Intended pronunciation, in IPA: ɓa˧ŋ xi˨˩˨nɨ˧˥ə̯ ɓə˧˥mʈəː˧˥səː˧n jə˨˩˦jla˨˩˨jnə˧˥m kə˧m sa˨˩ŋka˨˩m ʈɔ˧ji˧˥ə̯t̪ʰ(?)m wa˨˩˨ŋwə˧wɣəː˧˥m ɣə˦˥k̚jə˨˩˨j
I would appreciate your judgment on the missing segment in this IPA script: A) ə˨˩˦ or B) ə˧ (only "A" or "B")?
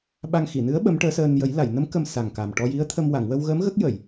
B